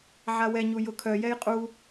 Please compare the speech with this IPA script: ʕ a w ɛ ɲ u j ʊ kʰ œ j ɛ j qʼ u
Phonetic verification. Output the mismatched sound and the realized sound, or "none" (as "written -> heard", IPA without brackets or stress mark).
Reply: none